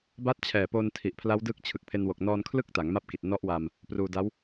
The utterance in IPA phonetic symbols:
b a˦˥ t̚ t͡ɕʰ ɛː˨˩ p oː˧ n tʰ i˨˩ ʔ pʰ l a˦˥ w d ɯː˦˥ k̚ t͡ɕʰ ɯ˨˩ k̚ pʰ e˧ n w o˨˩ k̚ n ɔː˧ n kʰ l ɯ˥˩ k̚ t a˩˦ ŋ m a˦˥ p̚ k i˨˩ t̚ n ɔ˦˥ ʔ w a˧ m | p r uː˧ d a˦˥ w

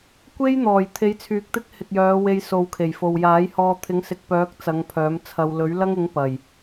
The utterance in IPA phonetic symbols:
kʷ e˥ j n̪ ɔː˨˩ j t̪ʰ e˨˧ j t͡sʰ yː˨ k̚ t̪ ɪ˥ k̚ h ɪ˨ k̚ j œː˨˧ w e˧ j s o˨ w kʰ e˨˩ j f o˨ w j aː˨˥ j h ɔː˧ t̪ʰ ɪ˨˥ ŋ s ɪ˨ k̚ p œː˨˥ k̚ t͡s ɐ˨˧ ŋ pʰ œː˨˥ m t͡sʰ ɐ˧ w l ɵ˨˥ ɥ l ɐ˥ ŋ ɪ˨˥ ŋ p ɐ˨˩ j

